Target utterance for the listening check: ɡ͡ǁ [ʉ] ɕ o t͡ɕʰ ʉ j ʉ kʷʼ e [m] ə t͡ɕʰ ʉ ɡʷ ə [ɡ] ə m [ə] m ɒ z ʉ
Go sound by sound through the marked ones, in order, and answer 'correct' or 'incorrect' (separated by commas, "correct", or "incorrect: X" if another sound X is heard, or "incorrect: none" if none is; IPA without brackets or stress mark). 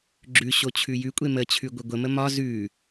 correct, correct, incorrect: ɡʷ, correct